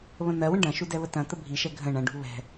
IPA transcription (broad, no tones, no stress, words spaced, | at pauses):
βə̃n̪ɜwə̃ ɖɐ̃ʃu dɛβətɐ̃t̪ə bʱiʃɛ ɡʱə̃ ɳɐ̃ɖṳ βɛ̤